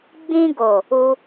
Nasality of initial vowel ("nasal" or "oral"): nasal